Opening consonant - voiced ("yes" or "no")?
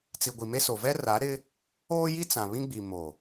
no